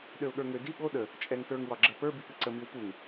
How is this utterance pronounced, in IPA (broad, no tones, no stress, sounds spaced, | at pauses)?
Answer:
ɗ ø ʊ̯ ɠ ə˞ ŋ ø d i ɠ o ɗ ə | t͡ʃʼ ɛ ŋ t ə˞ ŋ w ɒ ɡ͡ǁ ə p ə˞ b i p ɨ ǀ ə m i w p u ŋ